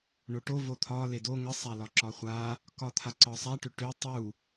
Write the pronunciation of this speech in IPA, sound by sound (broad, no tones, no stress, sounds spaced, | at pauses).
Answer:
ɳ o ʈ o v o t̪ʰ ɒ l e d o ŋ ə sˤ a l ɒ ǁ ɒ χʷ a | k ɒ t̪ʰ a ǀ ɒ sˤ a ʈ ʏ ʈ ʏ tˤ u